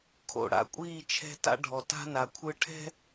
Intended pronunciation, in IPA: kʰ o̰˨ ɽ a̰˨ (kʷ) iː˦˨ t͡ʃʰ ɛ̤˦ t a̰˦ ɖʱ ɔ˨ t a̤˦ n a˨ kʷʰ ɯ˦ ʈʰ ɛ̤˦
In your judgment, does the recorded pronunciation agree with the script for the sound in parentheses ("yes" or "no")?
no